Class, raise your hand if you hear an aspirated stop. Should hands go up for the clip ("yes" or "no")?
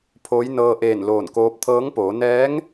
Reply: yes